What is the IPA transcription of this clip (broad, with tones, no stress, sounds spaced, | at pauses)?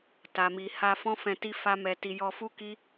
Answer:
t a˨ m i˨ h a˧ f ɔ̃˦ f ɛ̃˧ t i˦ f a˦ m ɛ˧ t i˧ j ɔ˧ f u˦ k i˦